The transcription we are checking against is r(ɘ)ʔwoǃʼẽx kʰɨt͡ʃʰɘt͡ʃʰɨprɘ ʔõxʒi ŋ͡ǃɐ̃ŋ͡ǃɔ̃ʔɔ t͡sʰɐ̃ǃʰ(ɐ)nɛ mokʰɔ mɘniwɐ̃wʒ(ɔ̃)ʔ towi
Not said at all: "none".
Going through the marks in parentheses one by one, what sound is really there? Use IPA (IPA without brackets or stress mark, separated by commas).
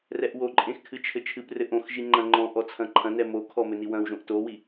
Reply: ɛ, ɐ̃, õ